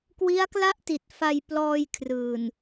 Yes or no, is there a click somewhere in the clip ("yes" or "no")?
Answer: no